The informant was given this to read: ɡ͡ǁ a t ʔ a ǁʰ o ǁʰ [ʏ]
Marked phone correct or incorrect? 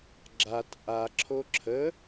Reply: incorrect: ə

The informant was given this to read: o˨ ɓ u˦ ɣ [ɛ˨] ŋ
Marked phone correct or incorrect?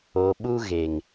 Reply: incorrect: e˨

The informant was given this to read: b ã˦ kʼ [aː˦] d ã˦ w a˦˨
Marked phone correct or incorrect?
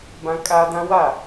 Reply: correct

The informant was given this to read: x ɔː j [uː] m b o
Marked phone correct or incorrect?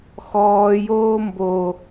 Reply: incorrect: oː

